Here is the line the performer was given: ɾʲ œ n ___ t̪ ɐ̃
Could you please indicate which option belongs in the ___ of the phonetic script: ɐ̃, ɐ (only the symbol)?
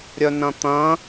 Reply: ɐ̃